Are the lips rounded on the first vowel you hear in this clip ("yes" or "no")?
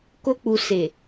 yes